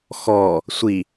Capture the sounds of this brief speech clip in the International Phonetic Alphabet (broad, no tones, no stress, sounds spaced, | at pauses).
x ɔ | sʷ i